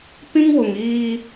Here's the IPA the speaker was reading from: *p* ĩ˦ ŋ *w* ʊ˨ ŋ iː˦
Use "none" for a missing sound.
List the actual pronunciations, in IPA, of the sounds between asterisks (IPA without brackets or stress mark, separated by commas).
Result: p, w